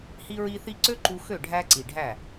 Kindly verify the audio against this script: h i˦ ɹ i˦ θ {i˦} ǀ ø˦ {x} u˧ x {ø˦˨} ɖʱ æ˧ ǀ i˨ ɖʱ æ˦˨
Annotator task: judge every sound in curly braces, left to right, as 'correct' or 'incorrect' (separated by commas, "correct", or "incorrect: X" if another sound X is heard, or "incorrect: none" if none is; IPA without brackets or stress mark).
correct, incorrect: ǃ, correct